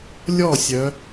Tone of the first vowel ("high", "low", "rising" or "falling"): falling